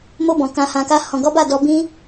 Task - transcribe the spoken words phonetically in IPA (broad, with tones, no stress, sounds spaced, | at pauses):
m o˧ b ɔ̃˨ k ã˧ h ã˧ k a˦ h ɔ̃˧ ɡ ɔ˦ b a˦˨ d ɔ˧ b ĩ˦